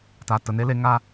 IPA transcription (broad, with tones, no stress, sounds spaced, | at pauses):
t a˧ t ə˧ n e˦ l e˦ ŋ a˦